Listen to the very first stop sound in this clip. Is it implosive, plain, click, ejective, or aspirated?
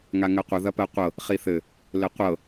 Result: plain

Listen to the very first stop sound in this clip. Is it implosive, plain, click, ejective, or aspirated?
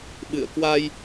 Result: implosive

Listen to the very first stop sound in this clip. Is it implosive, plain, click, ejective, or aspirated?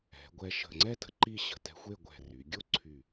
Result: plain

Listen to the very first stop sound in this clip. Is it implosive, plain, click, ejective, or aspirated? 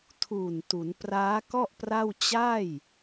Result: aspirated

